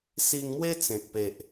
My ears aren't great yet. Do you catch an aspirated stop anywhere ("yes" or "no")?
no